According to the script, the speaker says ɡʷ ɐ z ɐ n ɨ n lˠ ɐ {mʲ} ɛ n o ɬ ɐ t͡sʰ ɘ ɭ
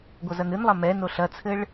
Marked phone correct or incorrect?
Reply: incorrect